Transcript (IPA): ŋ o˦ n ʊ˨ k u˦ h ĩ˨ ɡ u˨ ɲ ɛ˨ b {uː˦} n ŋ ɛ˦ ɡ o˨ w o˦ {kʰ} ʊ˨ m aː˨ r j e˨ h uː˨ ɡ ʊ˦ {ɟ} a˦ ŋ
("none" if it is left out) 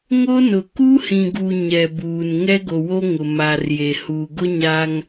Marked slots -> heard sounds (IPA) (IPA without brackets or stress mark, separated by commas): uː˨, ŋ, ɲ